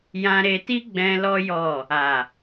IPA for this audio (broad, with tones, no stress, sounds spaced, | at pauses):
j ã˧ ɾ e˧ t i˦ ɡ͡b ɛ̃˧ l ɔ˦ j ɔ˦˨ | a˨